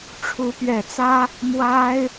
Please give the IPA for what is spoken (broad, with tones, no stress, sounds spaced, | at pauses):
ʈ͡ʂʰ u˧˥ p ɥ ɛ˨˩ t͡s ä˥ | m w a˥ ɪ̯